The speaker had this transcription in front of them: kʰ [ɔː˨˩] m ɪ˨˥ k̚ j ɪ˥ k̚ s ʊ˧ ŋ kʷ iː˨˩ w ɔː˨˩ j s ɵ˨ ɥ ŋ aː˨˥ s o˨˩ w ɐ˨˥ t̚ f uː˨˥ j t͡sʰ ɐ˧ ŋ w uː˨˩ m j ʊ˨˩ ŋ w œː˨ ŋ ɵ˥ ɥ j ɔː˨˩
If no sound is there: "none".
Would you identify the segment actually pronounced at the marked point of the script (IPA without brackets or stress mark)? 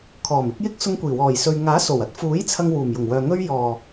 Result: ɔː˨˩